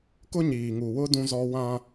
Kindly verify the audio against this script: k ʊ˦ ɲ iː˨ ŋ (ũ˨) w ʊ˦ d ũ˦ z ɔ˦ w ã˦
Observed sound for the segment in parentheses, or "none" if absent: u˨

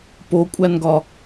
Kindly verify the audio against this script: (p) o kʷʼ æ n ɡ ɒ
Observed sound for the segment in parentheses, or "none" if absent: p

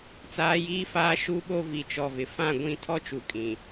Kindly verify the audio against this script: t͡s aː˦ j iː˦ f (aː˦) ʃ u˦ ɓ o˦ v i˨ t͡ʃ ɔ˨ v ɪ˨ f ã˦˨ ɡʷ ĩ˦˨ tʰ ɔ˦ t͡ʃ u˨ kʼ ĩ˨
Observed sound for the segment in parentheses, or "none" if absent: aː˦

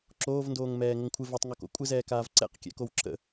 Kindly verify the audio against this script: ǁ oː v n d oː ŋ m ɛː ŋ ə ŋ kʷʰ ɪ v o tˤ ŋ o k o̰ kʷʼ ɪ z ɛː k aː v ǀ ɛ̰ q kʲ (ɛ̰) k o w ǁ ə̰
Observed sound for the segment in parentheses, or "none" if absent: ɛ̰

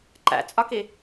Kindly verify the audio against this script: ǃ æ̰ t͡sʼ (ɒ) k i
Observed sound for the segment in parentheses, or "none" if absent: ɒ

